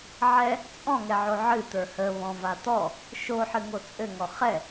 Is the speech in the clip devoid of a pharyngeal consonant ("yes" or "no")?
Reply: no